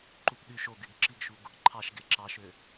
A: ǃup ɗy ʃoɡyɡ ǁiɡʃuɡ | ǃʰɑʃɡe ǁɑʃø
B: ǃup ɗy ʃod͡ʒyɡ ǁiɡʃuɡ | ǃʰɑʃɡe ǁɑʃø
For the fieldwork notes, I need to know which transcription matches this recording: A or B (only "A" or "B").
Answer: A